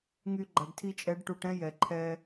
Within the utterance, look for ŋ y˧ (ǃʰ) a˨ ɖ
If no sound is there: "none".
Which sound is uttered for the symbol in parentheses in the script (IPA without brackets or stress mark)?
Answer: ɡ͡ǃ